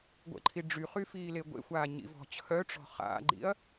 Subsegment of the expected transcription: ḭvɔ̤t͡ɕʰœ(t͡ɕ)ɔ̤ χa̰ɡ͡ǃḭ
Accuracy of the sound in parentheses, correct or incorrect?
incorrect